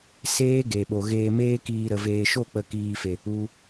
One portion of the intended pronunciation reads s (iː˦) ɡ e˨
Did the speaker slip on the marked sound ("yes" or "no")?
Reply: yes